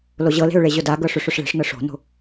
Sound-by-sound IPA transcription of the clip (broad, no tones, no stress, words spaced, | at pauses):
loʑɤle̤ʊ̯ ɭeʑʊdaɡɤ ʂʏʂʊʂɭe̤ʂnɤ ʂo̤no̤